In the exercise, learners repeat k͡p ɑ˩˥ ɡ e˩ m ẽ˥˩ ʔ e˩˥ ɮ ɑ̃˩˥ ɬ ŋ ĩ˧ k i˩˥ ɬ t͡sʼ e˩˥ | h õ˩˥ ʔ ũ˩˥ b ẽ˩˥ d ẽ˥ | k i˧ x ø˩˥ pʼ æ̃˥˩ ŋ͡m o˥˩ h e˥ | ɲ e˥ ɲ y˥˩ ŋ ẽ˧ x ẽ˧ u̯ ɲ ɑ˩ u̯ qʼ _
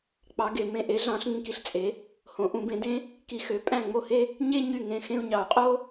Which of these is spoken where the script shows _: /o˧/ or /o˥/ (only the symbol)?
o˥